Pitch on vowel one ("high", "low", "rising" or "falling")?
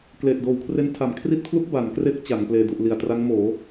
low